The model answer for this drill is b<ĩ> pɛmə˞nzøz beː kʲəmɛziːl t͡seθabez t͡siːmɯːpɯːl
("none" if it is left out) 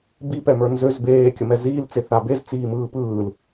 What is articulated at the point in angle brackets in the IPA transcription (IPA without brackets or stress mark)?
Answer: i